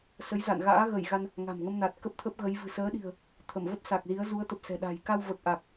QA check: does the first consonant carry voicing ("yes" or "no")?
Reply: no